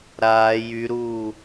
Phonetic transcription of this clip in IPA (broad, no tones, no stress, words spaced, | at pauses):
ɾaː jyɾuː